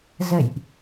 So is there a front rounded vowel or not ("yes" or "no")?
no